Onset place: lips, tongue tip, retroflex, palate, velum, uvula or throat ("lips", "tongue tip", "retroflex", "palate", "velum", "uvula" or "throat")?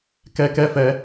velum